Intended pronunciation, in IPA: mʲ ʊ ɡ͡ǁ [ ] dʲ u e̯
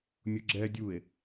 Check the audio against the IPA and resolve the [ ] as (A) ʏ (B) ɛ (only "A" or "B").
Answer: B